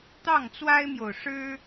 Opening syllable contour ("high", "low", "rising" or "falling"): falling